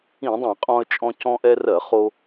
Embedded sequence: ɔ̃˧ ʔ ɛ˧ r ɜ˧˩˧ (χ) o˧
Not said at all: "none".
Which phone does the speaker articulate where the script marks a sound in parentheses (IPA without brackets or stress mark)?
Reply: χ